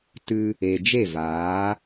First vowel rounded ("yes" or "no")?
no